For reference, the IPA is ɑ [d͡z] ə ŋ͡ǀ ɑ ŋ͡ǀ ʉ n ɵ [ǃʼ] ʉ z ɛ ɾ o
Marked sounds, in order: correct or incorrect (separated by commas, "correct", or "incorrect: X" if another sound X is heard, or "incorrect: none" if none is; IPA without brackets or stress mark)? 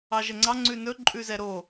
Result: incorrect: ʒ, correct